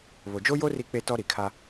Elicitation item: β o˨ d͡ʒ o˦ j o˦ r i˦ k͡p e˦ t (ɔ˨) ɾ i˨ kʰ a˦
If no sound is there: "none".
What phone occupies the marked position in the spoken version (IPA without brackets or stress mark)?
ɔ˦